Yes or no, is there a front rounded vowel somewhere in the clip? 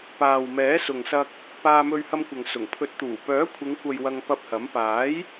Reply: yes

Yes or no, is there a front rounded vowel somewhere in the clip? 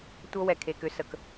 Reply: yes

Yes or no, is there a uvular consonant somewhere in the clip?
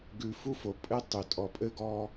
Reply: no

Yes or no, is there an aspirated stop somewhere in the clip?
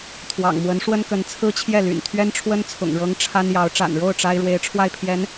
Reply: yes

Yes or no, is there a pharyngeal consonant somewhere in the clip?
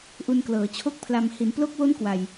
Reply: no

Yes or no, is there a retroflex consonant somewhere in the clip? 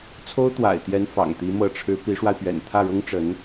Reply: yes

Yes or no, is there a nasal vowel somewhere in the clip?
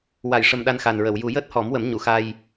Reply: no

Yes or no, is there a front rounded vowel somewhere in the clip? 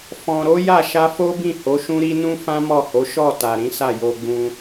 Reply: no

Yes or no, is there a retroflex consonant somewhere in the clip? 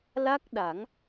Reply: no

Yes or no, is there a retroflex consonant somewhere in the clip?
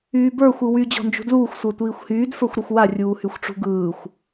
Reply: yes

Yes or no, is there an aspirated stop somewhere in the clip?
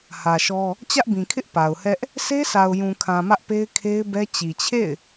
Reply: yes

